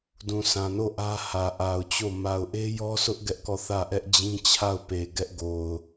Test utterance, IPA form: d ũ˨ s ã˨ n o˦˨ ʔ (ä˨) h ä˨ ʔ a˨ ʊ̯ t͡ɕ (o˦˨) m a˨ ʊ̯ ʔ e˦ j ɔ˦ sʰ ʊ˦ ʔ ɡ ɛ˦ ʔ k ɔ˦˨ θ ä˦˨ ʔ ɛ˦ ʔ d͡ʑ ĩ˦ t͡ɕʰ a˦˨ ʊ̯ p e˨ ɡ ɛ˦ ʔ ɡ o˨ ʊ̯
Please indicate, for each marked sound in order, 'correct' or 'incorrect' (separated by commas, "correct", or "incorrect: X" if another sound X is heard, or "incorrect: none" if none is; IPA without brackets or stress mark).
incorrect: ä˦, correct